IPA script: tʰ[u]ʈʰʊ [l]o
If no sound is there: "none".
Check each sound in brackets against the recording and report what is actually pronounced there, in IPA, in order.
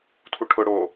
u, ɽ

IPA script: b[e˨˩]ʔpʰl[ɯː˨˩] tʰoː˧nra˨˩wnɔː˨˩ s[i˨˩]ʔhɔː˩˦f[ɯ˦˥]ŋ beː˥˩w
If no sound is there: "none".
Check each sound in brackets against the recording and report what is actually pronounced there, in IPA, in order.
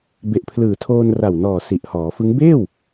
e˨˩, ɯː˨˩, i˨˩, ɯ˦˥

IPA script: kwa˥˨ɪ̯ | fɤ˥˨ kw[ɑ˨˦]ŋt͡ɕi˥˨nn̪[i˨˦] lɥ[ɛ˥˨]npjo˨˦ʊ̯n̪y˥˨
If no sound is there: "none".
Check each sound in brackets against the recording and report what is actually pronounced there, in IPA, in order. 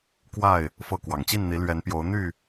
ɑ˨˩, i˨˦, ɛ˨˦

